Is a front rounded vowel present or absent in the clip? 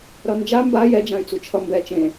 present